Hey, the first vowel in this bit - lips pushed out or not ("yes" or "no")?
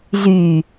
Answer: yes